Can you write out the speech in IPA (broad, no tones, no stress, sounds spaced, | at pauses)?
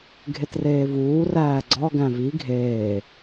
ɡʱ e t r eː v uː r æː ɡ͡ǀ ɒ ɡ æ̃ v i ɡʱ eː